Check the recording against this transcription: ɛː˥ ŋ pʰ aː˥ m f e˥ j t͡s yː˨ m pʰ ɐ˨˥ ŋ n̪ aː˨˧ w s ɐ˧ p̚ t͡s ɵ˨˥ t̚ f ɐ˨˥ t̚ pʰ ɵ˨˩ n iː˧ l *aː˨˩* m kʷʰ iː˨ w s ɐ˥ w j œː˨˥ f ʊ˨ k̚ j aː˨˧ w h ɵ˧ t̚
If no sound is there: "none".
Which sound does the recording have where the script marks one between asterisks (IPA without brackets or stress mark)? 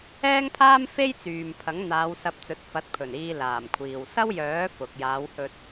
aː˨˩